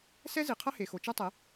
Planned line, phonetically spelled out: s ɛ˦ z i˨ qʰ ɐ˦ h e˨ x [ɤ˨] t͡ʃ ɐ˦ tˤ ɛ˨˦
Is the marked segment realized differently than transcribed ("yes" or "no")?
yes